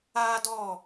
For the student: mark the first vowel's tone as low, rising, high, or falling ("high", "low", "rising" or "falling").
high